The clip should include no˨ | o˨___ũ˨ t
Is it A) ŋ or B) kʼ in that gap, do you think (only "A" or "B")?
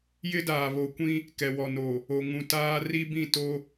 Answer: A